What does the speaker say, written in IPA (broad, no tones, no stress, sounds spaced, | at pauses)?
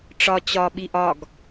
ʈ͡ʂ ɒ t͡ɕ ɒ ɓ i ʔ ɒ ɡ